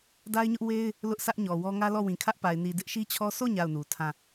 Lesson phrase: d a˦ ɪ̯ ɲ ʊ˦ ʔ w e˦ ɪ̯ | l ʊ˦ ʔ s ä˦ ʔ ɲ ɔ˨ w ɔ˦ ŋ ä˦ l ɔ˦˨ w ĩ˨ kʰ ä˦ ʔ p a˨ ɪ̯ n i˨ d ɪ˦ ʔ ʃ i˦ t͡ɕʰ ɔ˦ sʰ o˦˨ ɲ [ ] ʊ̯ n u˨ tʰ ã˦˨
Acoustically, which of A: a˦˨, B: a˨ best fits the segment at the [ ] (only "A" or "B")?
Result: A